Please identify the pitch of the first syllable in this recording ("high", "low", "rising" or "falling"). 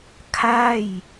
falling